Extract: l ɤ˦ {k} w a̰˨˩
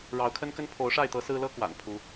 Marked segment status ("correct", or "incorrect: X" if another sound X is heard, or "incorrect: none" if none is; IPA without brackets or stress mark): correct